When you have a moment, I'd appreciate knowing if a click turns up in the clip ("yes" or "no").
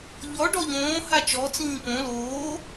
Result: no